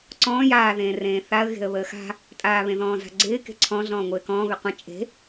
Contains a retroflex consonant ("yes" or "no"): no